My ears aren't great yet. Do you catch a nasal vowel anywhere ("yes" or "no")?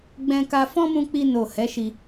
yes